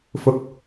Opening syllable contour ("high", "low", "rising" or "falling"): low